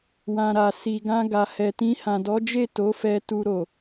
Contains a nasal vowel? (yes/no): yes